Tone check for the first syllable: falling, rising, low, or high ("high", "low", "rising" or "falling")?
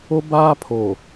high